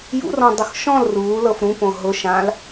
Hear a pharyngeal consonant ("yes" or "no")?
no